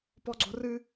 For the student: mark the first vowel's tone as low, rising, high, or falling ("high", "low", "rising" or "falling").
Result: high